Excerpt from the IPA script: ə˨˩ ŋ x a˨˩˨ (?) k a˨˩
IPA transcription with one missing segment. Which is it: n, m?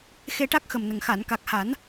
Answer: n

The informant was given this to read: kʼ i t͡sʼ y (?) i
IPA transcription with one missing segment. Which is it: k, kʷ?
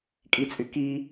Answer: k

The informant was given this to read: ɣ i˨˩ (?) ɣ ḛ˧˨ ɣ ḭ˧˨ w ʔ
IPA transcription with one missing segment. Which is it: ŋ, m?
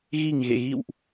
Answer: ŋ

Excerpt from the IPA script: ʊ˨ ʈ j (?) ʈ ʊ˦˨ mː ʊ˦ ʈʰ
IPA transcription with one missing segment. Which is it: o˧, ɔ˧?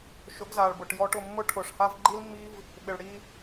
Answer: ɔ˧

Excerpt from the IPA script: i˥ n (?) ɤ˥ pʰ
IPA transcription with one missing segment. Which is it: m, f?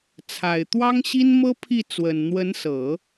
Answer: m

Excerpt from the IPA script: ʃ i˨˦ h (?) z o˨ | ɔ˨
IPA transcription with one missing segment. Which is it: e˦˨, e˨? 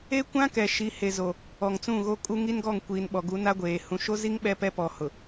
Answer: e˨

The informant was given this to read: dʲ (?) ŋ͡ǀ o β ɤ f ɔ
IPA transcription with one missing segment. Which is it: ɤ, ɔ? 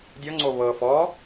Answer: ɔ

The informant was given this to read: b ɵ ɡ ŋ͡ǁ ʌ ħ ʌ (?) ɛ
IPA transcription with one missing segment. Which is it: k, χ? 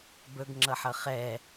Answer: χ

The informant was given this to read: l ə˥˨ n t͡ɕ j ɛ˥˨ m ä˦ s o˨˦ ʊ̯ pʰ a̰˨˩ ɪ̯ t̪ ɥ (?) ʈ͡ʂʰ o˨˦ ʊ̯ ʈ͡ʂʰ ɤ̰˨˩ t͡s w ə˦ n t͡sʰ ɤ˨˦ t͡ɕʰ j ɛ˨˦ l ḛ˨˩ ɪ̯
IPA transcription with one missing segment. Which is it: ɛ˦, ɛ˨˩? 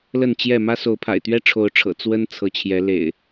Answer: ɛ˦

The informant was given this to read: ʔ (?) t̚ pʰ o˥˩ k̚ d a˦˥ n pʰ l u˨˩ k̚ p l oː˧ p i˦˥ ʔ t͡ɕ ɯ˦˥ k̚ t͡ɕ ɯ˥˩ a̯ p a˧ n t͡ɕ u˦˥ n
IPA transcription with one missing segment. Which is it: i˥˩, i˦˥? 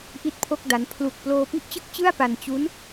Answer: i˥˩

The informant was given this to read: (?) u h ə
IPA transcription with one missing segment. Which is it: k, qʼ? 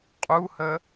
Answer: qʼ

